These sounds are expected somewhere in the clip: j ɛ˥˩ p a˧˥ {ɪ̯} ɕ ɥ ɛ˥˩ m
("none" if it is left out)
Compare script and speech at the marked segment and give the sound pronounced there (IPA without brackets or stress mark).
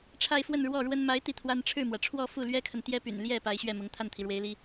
ɪ̯